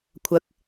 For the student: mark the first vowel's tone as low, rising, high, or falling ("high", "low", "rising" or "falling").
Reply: low